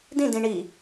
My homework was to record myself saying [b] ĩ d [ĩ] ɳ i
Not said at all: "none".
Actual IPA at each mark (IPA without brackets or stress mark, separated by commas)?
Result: d, ĩ